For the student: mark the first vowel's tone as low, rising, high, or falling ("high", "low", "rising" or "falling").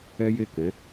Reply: high